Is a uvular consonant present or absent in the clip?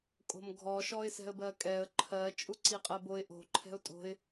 present